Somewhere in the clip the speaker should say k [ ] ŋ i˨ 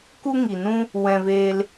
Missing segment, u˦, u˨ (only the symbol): u˦